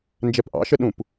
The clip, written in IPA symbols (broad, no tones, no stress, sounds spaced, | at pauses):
n d͡ʒ ɛ p ʔ ɑ̰ ʃ ə ɗ ũ p